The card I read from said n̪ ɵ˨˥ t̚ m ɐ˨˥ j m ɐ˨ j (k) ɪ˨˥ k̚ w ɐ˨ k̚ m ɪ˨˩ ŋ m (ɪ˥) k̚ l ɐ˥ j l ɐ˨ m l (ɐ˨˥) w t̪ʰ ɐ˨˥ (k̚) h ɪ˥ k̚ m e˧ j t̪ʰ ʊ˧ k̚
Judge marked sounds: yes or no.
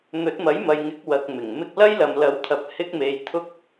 no, no, yes, no

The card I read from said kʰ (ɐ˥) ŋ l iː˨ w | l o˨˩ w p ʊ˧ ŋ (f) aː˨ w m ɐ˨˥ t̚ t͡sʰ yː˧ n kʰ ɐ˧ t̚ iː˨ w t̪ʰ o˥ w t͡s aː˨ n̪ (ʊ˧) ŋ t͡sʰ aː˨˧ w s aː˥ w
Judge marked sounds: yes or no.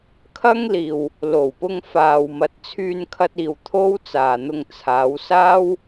yes, yes, yes

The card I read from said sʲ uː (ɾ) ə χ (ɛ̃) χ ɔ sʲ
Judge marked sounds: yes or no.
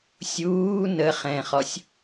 no, yes

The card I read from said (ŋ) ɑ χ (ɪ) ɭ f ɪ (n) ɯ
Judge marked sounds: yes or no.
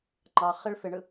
no, yes, no

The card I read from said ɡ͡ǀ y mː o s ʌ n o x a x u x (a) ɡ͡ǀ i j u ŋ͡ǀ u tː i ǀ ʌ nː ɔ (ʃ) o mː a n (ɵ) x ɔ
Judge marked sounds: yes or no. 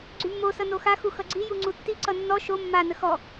no, yes, no

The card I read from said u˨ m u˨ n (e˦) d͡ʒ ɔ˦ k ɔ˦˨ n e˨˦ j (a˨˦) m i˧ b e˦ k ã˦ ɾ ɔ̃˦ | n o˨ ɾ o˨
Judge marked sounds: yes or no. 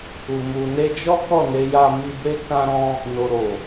no, no

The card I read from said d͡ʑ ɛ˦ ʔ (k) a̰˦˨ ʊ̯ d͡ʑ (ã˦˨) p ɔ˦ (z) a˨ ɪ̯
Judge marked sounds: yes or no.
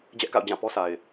yes, yes, no

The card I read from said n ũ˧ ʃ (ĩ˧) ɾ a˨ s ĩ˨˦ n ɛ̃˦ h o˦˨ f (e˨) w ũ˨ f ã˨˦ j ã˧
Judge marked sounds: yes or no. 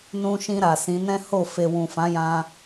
yes, yes

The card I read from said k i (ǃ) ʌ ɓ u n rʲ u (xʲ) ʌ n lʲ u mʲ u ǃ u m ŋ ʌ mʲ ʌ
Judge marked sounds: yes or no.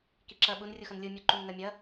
no, no

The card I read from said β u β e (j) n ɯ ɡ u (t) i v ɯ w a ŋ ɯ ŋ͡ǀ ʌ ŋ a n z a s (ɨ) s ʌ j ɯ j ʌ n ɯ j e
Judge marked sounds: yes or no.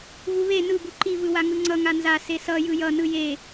no, no, no

